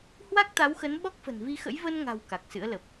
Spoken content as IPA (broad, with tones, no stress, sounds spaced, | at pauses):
h w a˦˥ k̚ t̪ a˨˦ w x ə˨˦ n ɓ ɔ˦˥ k̚ f ə̤˨˩ n v i˧ x ə̰˧˥ j v ə˧ n ŋ a̤˨˩ w k a˨˩ k̚ s ɨ̰˧˥ ə̯ l ə˨˩ p̚